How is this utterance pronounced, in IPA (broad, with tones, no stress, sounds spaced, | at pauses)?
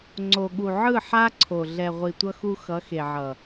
ŋ͡ǀ o˨ ɠ u˨ ʕ ɯ˦˨ ħ a˦ ǀʰ o˨ ɮ ɛ˨ ʁʷ i˨ tʷ ʌ˧ x u˧ x ʌ˨˦ x e˨ ʕ ʌ˨